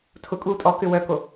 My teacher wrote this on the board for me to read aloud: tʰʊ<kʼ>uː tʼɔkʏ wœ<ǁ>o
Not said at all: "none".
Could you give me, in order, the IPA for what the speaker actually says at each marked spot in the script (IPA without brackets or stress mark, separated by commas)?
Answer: kʼ, k